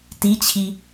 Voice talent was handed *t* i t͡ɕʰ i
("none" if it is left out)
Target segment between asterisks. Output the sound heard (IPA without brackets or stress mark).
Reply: t